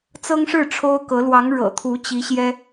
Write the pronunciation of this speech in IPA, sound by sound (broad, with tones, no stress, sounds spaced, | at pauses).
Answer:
t͡s ɤ˥ ŋ ʂ ɻ̩˥˩ ʈ͡ʂʰ o˥ ʊ̯ k ɤ˧˥ l w ɑ˧˥ ŋ ɻ ɤ̰˨˩ t̪ʰ u˧˥ t͡ɕ i˧˥ ɕ j ɛ˥